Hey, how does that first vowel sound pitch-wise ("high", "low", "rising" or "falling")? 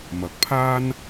low